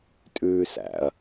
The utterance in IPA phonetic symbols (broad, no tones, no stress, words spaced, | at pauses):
tʼʉːsæ̰ɐ̯